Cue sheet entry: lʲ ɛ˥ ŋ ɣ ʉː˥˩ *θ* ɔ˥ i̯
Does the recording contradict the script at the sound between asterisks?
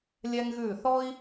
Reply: no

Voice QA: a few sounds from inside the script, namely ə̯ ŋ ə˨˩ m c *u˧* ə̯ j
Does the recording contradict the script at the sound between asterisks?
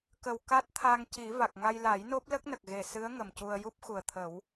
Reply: no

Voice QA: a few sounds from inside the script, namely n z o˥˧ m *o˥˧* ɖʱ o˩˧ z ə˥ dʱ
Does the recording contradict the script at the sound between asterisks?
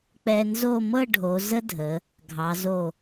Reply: yes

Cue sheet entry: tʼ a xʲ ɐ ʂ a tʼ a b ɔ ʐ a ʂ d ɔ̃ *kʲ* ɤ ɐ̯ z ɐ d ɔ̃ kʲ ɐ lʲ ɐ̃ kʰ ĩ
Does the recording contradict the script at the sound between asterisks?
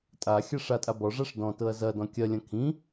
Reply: yes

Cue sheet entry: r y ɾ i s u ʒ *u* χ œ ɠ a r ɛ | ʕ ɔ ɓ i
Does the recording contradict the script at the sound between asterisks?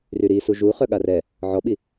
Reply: no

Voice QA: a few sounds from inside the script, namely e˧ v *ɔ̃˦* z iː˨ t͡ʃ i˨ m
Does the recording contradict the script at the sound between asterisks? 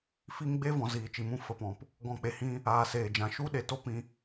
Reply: yes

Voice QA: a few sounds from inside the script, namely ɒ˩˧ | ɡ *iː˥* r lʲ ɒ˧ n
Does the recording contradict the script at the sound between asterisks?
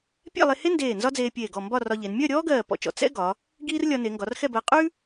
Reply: no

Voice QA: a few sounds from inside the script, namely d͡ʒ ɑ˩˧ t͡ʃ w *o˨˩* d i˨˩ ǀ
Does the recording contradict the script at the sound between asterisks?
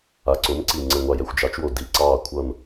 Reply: no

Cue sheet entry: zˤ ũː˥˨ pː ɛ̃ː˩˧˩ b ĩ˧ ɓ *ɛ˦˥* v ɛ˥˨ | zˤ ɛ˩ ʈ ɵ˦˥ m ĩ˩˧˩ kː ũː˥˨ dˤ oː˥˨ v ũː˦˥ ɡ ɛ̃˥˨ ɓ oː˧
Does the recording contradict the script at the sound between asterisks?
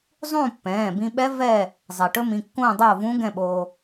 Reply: no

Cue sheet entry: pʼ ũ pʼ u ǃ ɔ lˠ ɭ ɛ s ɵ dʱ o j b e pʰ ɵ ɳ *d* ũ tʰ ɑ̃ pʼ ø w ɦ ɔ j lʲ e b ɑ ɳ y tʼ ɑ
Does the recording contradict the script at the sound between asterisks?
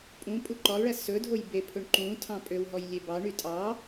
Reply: yes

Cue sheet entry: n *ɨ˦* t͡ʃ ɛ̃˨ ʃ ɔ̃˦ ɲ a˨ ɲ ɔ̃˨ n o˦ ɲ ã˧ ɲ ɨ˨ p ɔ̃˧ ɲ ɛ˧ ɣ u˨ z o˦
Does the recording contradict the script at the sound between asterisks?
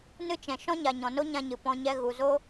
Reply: no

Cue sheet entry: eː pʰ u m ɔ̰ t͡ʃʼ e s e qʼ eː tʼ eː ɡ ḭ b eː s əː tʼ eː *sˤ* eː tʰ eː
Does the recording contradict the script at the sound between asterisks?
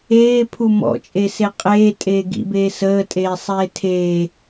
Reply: no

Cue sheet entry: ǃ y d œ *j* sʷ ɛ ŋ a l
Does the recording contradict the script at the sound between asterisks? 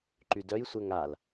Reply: no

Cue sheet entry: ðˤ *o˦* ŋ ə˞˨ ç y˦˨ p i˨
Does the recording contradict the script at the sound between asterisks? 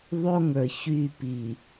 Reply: no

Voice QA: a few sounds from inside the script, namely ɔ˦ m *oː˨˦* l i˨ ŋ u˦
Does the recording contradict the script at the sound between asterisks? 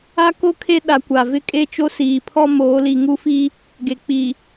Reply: no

